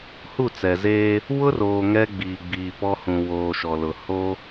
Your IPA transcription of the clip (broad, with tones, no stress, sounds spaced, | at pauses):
h u˦˨ t͡s ɛ˨ z eː˦ | w ʊ˦ r oː˨ ŋ ɛ˦ ɡ͡b iː˨ ɡ͡b iː˨ p ɔ˦ h ũ˨ w oː˨ ʃ ɔ˨ l ʊ˨ h o˦